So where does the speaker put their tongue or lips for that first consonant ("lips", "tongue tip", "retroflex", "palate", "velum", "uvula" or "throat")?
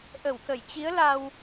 throat